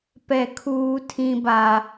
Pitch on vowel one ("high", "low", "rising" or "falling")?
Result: low